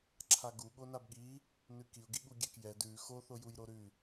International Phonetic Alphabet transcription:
ǁʰ a ɡ u ɠ o n a b ɠ i | n ʉ k i ʊ̯ ɡ i ɠ u ɡʲ ɛ k j ɛ d ʉ x o θ o j u j ɾ o ɾ ʉ

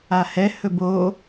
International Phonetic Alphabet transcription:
a h ɛ h ɵ b o

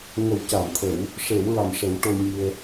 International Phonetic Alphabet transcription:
ŋ ə˨˩˦ w c a˨˩˨ m t̪ʰ ə˨˩˦ w | ʂ e˨˩˦ w ɹ a˨˩ m ʂ ə˨˩˦ w ʈ o˧ ɲ i˧ ə̯

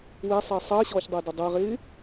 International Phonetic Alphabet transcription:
w e sˤ əː sˤ əː ɕ ɔː ç dˤ əː d ə dˤ ə ɪ̯ ʁ ɪː

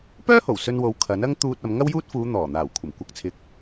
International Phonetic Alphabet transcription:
p œː˥ h o˨˩ w s ɵ˧ n w o˨˥ w kʰ ɐ˨˥ n ɐ˥ ŋ t̪ uː˧ t̚ ɐ˨˧ m ŋ ɐ˥ w j uː˥ t̚ f uː˨˧ n̪ ɔː˨˩ n̪ aː˨˩ w kʷʰ ɐ˨˩ m kʷ ɐ˧ k̚ t͡sʰ ɪ˧ k̚

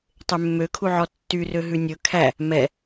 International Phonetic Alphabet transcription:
tˤ e mː ø kʰ u ʕ ɔ tː y r ø ɦ ʉ nʲ ɵ kʰ æ | m ɛ

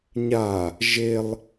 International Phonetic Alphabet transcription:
ɲ a | ʒ e lˠ

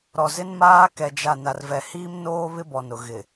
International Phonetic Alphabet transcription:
ɾ ɔ˨ z ɪ˦ n m aː˦ k ɛ˨ d͡ʒ a˨ n a˨ r v ɛ˨ h iː˦ m n oː˦ β ɪ˦ b ɔ˨ n ʊ˨ ɣ ɪ˨

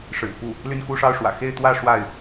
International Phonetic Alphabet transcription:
ʂ ɻ̩˨˩ p u˥˩ | l y˥˧ n k u˥˧ ʂ ɑ˥˩ ʊ̯ ʂ w ä̰˨˩ x e˥˧ ɪ̯ t̪ w ä˥˧ ʂ w a˥˩ ɪ̯

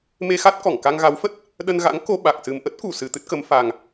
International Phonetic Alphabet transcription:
m e˧ x a˦˥ t̚ k ɔ˧˩ ŋ k a˧ ŋ ɣ a˨˦ w f ə˦˥ t̚ | ɗ ə˧ n ɣ a̰˧˥ ŋ k o˧ ɓ a˨˩ k̚ s ɨ˨˩ m ʔ ə˦˥ t̚ k u˧˩ s ɨ˨˩ t̪ ɨ˦˥ t̚ k ə˨˦ m f a˨˩ ŋ

